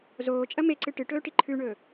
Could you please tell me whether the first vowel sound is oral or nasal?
oral